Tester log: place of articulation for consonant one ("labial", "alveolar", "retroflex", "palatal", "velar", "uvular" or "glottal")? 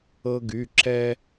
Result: velar